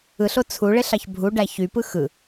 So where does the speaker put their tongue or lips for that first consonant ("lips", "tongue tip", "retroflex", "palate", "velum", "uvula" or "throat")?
tongue tip